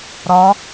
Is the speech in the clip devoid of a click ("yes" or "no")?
yes